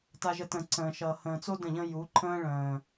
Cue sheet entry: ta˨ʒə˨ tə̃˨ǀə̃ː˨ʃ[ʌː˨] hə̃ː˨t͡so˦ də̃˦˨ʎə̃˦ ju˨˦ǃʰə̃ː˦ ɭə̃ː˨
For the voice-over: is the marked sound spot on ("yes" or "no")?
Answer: yes